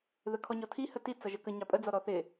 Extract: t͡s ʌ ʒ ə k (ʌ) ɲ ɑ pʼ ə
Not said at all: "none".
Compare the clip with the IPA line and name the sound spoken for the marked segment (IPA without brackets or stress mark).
ə